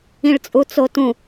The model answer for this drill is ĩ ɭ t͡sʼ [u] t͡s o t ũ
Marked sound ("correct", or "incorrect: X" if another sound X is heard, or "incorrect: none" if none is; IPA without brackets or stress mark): correct